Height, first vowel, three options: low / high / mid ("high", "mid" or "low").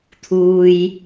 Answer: high